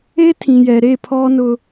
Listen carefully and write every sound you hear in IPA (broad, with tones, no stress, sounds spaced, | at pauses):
e˦ tʰ ĩ˨ j ɛ˨ ɾ e˦˨ pʰ ɔ˦ n ʊ˦